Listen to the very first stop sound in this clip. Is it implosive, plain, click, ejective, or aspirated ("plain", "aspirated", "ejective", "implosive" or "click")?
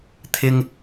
aspirated